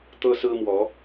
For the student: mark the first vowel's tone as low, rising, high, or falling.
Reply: high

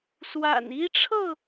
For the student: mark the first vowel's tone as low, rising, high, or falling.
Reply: low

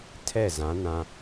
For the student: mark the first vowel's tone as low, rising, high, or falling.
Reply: falling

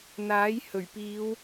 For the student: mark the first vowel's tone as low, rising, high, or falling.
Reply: rising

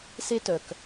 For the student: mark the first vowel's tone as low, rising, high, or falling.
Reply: high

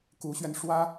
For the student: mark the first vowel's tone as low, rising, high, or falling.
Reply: rising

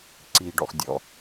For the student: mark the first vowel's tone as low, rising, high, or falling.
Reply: low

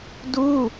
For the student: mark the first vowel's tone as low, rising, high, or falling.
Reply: falling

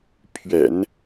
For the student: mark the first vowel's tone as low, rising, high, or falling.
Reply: low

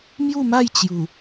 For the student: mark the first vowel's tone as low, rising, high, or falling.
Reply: falling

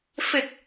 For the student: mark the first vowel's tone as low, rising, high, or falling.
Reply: low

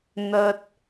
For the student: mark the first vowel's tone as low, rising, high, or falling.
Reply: high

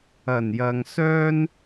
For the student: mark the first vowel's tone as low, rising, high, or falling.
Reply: low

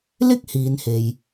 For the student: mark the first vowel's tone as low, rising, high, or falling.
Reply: high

